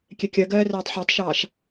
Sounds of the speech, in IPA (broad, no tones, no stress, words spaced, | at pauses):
kʲɛkʲɜɡɜː rɜːtˤħɜtˤʃɑːʃ